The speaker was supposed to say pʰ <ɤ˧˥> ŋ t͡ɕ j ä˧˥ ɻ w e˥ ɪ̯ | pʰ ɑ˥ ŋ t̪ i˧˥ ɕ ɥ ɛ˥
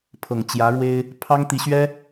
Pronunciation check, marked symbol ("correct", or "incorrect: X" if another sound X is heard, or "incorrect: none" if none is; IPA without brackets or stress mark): incorrect: ɤ˨˩